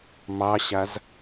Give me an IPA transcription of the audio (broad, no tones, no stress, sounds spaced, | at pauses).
m ɑ ɕ a z